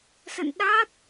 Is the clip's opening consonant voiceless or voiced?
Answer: voiceless